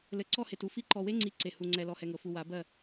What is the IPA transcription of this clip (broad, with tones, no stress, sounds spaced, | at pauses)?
l ɘ˨ ǀ ɔ˦˨ h e˨ t u˦ f i˦ ǃ ɔ˨ w e˦ ŋ͡ǀ i˨˦ ǀ e˨ h u˨ ŋ͡ǀ ɛ˨ l ɔ˨ h ɛ˨ ŋ ɤ˨ f u˨ w a˨˦ b ɜ˦˨